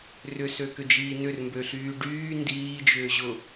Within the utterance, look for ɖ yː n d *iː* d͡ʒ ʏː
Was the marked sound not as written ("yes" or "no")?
no